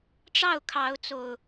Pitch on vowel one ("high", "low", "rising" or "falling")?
falling